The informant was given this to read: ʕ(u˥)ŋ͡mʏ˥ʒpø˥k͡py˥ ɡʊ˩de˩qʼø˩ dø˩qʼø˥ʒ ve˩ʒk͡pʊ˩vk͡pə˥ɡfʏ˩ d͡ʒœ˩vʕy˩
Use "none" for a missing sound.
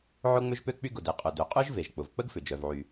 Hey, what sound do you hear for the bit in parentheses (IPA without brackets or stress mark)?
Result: ʊ˥